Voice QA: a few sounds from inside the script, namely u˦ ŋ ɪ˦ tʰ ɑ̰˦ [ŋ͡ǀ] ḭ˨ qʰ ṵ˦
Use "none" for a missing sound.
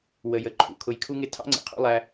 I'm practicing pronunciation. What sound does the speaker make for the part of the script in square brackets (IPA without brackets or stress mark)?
ŋ͡ǀ